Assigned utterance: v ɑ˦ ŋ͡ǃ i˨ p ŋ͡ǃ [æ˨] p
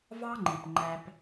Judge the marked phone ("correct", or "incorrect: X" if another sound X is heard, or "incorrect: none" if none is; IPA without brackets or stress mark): incorrect: æ˦